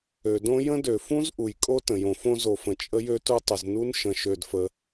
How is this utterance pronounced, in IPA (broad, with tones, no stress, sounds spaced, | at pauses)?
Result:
ø˩ d õ˥ j ə̃˥ d ø˩ f ũ˥ z ʔ u˩ j kʼ o˥ t ə̃˩ j õ˩ f õ˥ z o˩ f ə̃˩ t͡ʃʼ ə˥ j ø˥ t u˥ tˤ ə˩ z n u˥ n ʃ ə̃˩ ʃ ø˩ d f ə˩